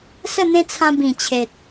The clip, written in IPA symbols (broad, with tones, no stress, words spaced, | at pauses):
sə˥˧n̪ẽ˦t͡sʰã˧ bĩ˨˩ t͡ɕʰe˨t̚